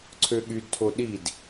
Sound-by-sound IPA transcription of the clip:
ǀʰøɠydtʰo ɗid

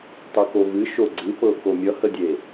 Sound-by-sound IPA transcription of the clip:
tˤɨkovɨ ʃoɡ͡ǀɨpɤ komʲʌhədʲe

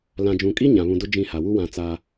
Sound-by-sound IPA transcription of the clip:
lã˨d͡ʒũ˨kʼi˦ ɲã˨βũ˨dʊ˦ d͡ʒĩ˦˨ha˨ wu˦wã˨ t͡saː˦

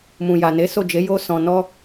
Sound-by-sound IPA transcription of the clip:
mũ˨ja˨ne˨˦ so˦˨d͡ʒe˨˦ jo˧ sɔ̃˨nɔ˧

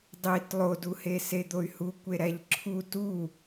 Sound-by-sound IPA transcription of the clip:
dˤit lˠoduhe sed̪oy̯hukʷe ɾæʎǁʰu tu

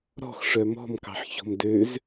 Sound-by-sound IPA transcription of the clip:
ɾɔ̤xʂœ mɔ̤m kɑ̤ħçɔ̤mdøz

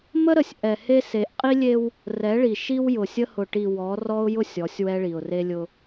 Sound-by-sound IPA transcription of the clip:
mə˦ɾə˨sʲ ʔɛ˨he˦se˨˦ʔ qʼi˦lʲe˦w | rɛ˨˦ɭi˨ʃi˦w jʊ˨sʲə˦ hʊ˨ʈi˨ wɔ˨˦rɔ˦ʊ̯ jʊ˦sʲ ɔ˨˦sʲwɛ˦ɭi˨ʊ̯ re˦lʲʊ˦

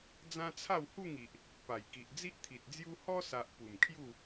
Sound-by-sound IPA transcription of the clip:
d͡zã˦t͡sʰa˥˧whu˥˧ŋi˨ʔ | pa˨˩jki˨ʔ d͡zi˦ʔt̪ʰi˨t̚d͡zju˦ hɔ˦sa˨ʔ pu˨˩mkʰju˥˧

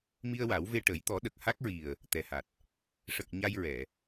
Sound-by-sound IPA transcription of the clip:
mi˧ə̯ wa˨˩˦w ve˧ʈə˨˩˦j t̪ɔ˨˩˦ɗə˨˩k̚ ha˦˥k̚ɹi˨˩ə̯ | t̪ɛ˨˩ha˨˩t̚ | ʂə˨˩k̚ ɲa˧jɹɛ˨˩˨

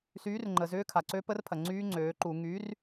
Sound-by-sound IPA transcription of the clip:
syː˨˥rŋ͡ǃə˩zʏː˦˥ kʰa˩ǀø˦˥pə˦˥rpʰɐ˩ ŋ͡ǀyː˦˥ŋ͡ǀøː˩˧ǃu˧˩˧ ŋyː˨˥r

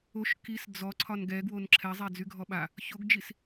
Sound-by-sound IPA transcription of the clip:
oʃ kis d͡zɔ ǀʰɒnɡɛɡwon ǁʰɛzˤɛ d͡zyɡʱɔɓa | çoɡd͡ʒis

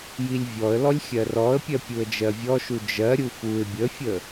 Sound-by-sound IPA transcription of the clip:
jilʲvʲɔə̯lɔlʲ xʲɜrɔə̯pʲɜ pʲuə̯d͡ʒɜvʲɔʃu d͡ʒɜɾʲu fuɪ̯ bʲəfʲə

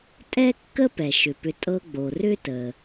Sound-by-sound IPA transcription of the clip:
tʼɛ˥kːə˥ pɛ˩ʃʏ˩pʏ˨ tʼɤ˦ɡ͡bo˩ rʏ˥tə˩

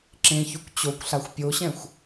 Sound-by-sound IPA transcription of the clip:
ǁẽçʉkʷ t͡ɕokʷɬaxʷ pʲoɕɛ̃xʷ

